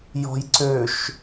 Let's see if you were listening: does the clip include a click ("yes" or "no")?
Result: yes